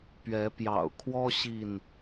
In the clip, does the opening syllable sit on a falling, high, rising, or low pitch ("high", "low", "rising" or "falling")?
rising